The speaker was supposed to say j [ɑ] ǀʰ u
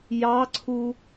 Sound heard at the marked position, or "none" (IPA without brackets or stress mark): ɑ